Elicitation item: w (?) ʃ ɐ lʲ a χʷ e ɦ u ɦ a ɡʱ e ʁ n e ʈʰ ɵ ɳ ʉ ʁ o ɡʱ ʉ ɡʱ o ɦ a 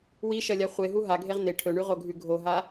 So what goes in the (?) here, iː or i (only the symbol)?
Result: i